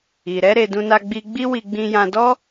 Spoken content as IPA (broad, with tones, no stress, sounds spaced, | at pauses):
i˨ ɾ ɛ˨˦ ɾ e˧ d ũ˧ n a˧ ɡ͡b i˧ ɡ͡b i˦ w i˧ ɡ͡b ĩ˧ j ã˧ d ɔ˦